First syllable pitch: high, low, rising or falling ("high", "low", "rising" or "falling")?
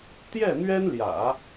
falling